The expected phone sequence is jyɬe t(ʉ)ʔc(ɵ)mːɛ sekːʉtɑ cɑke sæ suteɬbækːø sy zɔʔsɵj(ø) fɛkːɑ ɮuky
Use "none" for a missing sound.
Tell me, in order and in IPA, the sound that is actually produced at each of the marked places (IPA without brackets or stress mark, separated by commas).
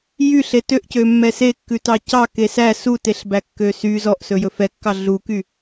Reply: ø, ø, ɵ